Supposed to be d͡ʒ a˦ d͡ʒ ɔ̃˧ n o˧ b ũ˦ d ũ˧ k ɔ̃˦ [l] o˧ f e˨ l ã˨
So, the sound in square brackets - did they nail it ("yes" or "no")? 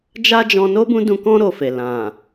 no